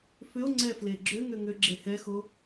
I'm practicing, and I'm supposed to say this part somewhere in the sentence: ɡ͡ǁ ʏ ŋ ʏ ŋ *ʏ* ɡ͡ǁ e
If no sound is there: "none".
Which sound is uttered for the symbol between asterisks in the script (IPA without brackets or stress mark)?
ʏ